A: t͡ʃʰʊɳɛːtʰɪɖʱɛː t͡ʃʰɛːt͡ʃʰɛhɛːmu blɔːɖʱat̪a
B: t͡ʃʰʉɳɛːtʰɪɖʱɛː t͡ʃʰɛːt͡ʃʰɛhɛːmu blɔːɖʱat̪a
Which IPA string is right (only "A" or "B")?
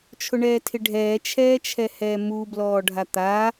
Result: A